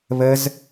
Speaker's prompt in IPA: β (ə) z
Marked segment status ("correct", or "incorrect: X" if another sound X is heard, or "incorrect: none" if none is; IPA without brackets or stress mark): correct